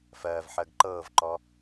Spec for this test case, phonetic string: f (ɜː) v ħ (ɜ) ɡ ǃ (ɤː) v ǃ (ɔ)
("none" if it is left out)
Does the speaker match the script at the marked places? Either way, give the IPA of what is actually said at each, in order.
ɜː, ɜ, ɤː, ɔ

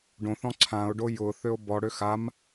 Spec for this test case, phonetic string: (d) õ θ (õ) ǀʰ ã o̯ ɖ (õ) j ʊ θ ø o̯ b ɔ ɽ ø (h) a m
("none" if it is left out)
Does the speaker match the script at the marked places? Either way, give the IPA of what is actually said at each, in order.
ɖ, ɔ̃, o, x

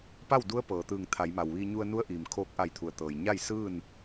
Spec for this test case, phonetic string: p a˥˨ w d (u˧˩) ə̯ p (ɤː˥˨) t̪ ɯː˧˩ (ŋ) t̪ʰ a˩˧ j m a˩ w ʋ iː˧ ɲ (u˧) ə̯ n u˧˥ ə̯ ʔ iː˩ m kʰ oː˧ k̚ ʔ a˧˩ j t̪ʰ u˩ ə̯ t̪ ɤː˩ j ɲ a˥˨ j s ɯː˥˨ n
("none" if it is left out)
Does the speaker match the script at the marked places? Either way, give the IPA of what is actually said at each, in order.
u˧˥, ɤː˩, ŋ, u˧

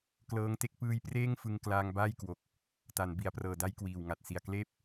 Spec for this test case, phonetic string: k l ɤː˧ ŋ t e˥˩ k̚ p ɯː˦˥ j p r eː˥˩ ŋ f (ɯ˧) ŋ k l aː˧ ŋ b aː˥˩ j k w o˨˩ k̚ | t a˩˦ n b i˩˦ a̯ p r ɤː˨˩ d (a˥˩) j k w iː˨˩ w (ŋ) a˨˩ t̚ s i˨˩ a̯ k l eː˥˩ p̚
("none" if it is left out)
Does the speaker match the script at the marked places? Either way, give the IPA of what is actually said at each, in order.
ɯ˧, a˦˥, ŋ

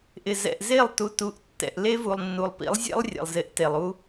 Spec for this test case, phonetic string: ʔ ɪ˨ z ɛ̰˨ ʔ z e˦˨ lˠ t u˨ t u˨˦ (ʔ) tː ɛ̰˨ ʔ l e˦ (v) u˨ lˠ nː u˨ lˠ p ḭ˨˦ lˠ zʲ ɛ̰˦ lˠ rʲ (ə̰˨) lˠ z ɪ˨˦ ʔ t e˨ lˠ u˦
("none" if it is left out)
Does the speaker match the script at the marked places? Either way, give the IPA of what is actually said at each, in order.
ʔ, v, ɛ̰˨

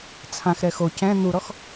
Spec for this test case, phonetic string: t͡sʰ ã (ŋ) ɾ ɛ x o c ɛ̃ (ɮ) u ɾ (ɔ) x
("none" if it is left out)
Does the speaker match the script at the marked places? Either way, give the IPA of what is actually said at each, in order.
x, n̪, ɔ

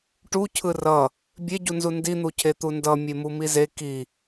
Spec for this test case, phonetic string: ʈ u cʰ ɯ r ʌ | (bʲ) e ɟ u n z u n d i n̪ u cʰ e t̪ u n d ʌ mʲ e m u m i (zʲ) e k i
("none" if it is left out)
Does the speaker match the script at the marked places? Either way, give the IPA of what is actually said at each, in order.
bʲ, z

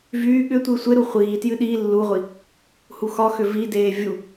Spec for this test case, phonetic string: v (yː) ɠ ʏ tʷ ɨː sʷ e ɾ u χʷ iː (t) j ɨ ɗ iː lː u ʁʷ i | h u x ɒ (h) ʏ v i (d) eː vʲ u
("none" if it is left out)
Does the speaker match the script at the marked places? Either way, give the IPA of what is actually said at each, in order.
yː, t, x, d

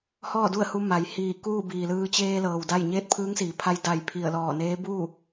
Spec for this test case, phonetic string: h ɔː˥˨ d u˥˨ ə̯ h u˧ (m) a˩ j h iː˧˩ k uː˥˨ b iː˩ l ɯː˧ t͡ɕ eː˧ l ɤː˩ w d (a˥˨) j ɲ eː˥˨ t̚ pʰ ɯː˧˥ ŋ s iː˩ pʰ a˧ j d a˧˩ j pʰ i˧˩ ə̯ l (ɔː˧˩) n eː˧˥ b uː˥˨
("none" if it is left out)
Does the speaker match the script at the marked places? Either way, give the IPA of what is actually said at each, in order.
m, a˥˨, ɔː˧˩

